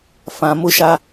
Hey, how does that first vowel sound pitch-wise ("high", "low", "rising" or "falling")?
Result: low